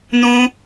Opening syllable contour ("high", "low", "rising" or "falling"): high